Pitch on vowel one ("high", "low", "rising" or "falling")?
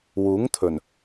rising